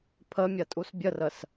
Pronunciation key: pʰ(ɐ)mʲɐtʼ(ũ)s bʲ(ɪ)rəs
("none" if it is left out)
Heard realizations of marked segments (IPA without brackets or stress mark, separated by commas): ə, u, ə